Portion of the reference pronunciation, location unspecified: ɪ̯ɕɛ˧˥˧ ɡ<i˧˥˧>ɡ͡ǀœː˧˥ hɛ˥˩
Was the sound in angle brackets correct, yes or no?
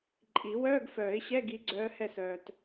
no